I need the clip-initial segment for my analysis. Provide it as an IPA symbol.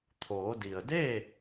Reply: t̪ʰ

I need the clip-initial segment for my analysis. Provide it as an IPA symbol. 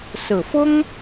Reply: s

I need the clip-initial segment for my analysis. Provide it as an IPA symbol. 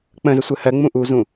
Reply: k͡p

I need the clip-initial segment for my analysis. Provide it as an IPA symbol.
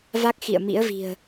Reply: v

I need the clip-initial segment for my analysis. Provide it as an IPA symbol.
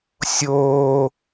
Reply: sʲ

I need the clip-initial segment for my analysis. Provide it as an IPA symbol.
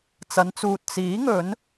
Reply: t͡s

